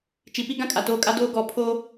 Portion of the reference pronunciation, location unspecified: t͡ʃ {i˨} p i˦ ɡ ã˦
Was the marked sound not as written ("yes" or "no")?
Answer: no